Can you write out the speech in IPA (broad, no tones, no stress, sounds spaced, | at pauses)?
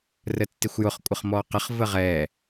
r ə tː ɪ xʷ j ʊ χ kʷʼ ə χ m ɔ q ə χ v ə ʁ ɛ